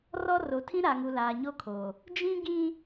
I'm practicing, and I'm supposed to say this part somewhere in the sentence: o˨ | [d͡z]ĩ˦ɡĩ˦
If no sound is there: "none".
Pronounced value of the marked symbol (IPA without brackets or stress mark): d͡ʒ